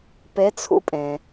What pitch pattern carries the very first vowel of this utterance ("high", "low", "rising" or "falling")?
rising